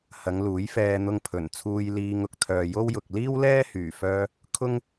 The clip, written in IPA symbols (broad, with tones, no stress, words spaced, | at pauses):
hɐ˨˧ŋluː˨˥jfɛː˧ n̪ʊ˧ŋpʰɵ˨˩nt͡sʰuː˧j liː˧ŋʊ˧k̚ t̪ʰœː˨jo˥wjʊ˨k̚ liː˥wlɛː˥ hyː˨˩fœː˧ | kʰʊ˥ŋ